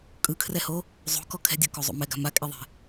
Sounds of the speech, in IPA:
kʼ ɯ kʰ r ɛ h o | zˤ o̤ k ɔ kʰ ɛ̤ dʲ ɤ k o zˤ o̰ m ɛ ɡ a̤ m a kʼ e ðˤ e̤

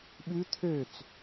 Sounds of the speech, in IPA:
ɓ ʉ t̪ʰ ø t͡s

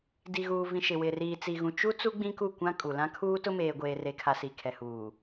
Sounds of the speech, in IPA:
d i˨ ɣ uː˨ v ĩ˨ ʃ ɪ˨ w ɪ˨ r iː˨ t͡s i˨ ɣ ũ˨ t͡ʃ u˦ t͡s u˦ ɡ͡b ĩ˦ k u˦˨ kʷ ã˦ kʼ u˨ l ã˦ kʰ uː˦ t ʊ˦ m eː˨ ɡʷ eː˨ r e˨ kʰ a˨ s i˨ kʰ ɛ˨ h uː˨

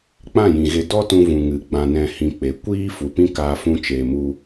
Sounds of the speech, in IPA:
k͡p ã˦˨ j ĩ˨ ɣ e˧ d ɔ˦ t ũ˧ v ũ˨ ŋ ɨ˨ ɡ͡b ã˨ n ɛ̃˨ h ĩ˧ k͡p e˨˦ kʷ iː˦ f u˨˦ p ĩ˦ k aː˧ f ũ˧ t͡ʃ eː˨ m u˧

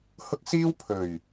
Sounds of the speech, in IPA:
h ʊ˥ k̚ s iː˥ w pʰ ɵ˨˩ ɥ

